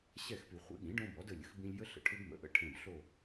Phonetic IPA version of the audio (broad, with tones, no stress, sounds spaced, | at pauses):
ɕ ɛ˦˨ x p y˨ χʷ ḭ˩˥ ɠ ĩ˩˥ ɖ õ˦ b ɔ˩˥ d ə˦˨ lʲ ə̰˩˥ x b ĩ˦ lʲ j ə˦ ɬ ə̰˨ ʈʰ ʏ˦ b m ə̰˩˥ ʔ ə̰˦˨ ʈʰ ẽ˦˨ b ɬ o˦˨